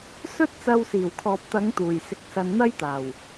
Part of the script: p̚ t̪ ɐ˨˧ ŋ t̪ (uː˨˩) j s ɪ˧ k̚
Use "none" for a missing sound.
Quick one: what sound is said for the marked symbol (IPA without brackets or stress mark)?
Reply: uː˨˩